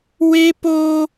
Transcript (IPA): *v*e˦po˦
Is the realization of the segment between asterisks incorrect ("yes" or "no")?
yes